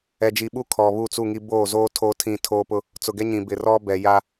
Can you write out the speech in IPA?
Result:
ɛ˨d͡ʒi˨ɓu˦ kʰɔ˨βu˦˨ t͡su˦˨ŋi˦ boː˦˨zoː˦ tʰoː˦tʰĩ˦˨ tʰoː˦pʊ˦ | t͡sʊ˨ɡɛ˦ɲĩ˨ bɪ˨rɔ˦ bɛ˨ja˦

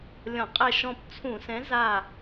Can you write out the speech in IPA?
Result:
lʲɔ̃˧˩˧qʼɛ˦˨ʃɔ̃˦˨p t͡sʰũ˧˩˧sɛ̃˨˥ za˦˨

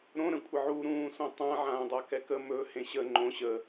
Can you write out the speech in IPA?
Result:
ɾõ ɾə̃kʷʼɪʕu ɾũːsõtˤã ʕãːdˤakɛkə mɵ hẽɕə ŋ͡ǃõ ɕə

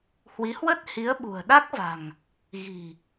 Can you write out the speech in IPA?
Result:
hwi˨˦hwə˦˥t̚hi˨˦ə̯ɓṳ˨˩ə̯ ɗa˦˥k̚va̤˨˩ŋ | ɣi̤˨˩

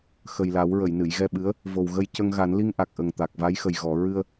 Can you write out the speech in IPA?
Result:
xə˨˩jla˨˩˦w ɹə˨˩˨jnɨ˨˩˨jɣɛ˧ɓɨ˧˥ə̯ | vo˨˩wɣə˧jcə˧ŋ ɣa˨˩˦nli˧ŋʔa˨˩k̚ ʔə˨˩ŋ t̪a˨˩k̚va˧˥j xə˨˩j ɣɔ˨˩˦ ɹɨ˧ə̯

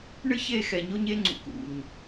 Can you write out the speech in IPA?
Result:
ɳɨ˦çe˦˨ xɛ˨ɲo˦ɲe˦ŋ͡ǀṵ˨ kṵ˨ɲ

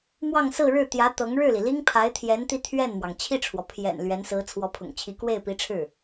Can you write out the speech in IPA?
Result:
mwɑ˥˧ŋ sɹ̩˥˧ɻɻ̩˥˩ t̪jä˧˥ t̪ɤ˧˥ŋ ɻɻ̩˥˩li˩li˥ŋ pʰa˧˥ɪ̯t̪ʰjɛ˧˥n t̪i˥˧t̪ʰɥɛ˥˩nmwɑ˩ŋ t͡ɕʰi˥˩ʈ͡ʂʰwɔ˩ pʰjɛ̰˨˩n lɥɛ˧˥nsɹ̩˧˥ t͡sʰwɔ˧˥pʰʊ̰˨˩ŋt͡ɕʰi˧˥ kwe˥˩ɪ̯pi˧˥ʈ͡ʂʰɻ̩˥˩

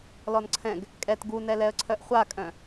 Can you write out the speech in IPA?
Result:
lɔnǀʰɛ̃ɡ | kʼɛt ɡunɛlɛə̯ǀʰœʔ χʷakʼœ̃

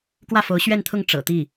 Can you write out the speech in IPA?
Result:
kwä˥˩fo˧˥ʊ̯ɕɥɛ˥˧nt̪ʰʊ˥˩ŋ ʈ͡ʂɤ̰˨˩t̪i˥˩

